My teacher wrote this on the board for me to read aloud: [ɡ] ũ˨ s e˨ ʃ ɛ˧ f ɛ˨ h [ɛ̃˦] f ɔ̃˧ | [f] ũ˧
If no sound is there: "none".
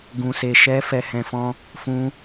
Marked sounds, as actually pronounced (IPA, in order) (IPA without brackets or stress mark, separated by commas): ɡ, ɛ̃˨, f